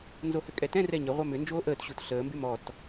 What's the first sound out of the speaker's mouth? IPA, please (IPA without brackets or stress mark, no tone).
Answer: n